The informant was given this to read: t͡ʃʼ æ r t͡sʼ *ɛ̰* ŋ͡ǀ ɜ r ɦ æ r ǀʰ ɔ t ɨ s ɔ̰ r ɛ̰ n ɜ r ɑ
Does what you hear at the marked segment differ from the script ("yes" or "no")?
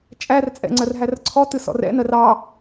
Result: no